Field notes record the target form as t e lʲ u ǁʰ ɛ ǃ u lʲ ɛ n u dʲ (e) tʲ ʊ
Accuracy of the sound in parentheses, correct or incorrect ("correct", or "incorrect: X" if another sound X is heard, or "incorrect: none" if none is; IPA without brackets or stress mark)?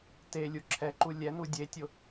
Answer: correct